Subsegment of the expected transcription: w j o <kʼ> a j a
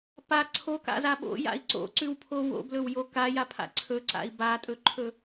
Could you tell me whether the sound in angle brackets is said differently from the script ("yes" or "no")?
yes